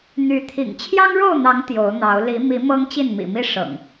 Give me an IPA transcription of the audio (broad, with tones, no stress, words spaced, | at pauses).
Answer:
n̪y˨˦ t̪ʰḭ˨˩ŋ t͡ɕʰjɑ˦ŋɻo˥˨ʊ̯n̪ɑ˨˦ŋ t̪jo˨˦ʊ̯n̪ɑ˨˦ʊ̯ li˨˦ mi˨˦ mɤ˦ŋt͡ɕi˥˨nmḭ˨˩mi˥˨ ʂɤ̰˨˩ŋ